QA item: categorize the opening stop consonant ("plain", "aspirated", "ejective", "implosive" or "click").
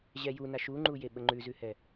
click